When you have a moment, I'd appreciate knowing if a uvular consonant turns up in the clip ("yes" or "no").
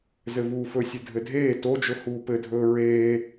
no